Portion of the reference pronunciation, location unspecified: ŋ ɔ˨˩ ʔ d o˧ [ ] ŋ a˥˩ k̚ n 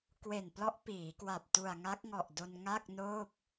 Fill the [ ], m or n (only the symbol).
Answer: n